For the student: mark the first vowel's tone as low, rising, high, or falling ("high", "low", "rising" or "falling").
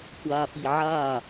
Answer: low